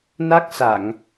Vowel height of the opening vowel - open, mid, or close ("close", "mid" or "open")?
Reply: open